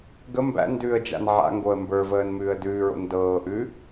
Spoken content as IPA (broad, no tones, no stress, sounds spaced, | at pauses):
ɡ ə m b æ̰ n d ʉː ə̯ d͡ʒ a̰ n ʕ a̰ ŋ ɡ o ə̯ m b ə˞ v əː n m ʉː ə̯ d ʉː ɹ o̰ n d ɤː ʔ ʉ